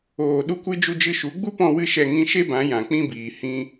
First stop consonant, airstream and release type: implosive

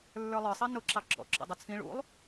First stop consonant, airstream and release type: click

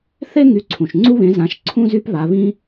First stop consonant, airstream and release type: click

